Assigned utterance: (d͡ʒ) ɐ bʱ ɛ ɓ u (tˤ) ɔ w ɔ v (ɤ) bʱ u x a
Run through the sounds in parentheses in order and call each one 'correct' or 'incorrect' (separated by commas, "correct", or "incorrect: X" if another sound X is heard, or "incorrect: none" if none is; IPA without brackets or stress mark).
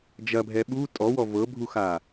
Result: correct, incorrect: tʼ, correct